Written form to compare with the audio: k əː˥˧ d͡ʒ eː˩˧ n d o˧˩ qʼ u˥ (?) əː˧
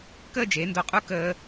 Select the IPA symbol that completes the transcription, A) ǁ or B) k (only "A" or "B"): B